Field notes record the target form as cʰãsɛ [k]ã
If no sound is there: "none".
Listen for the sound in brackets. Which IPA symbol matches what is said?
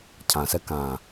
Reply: k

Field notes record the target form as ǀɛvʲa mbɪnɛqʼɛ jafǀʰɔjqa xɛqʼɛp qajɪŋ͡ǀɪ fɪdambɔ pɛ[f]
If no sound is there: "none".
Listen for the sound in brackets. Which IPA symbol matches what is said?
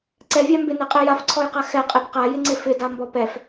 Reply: f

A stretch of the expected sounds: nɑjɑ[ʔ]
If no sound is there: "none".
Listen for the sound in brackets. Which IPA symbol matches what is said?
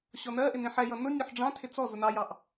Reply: ʔ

